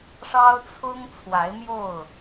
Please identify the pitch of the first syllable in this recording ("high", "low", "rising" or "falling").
high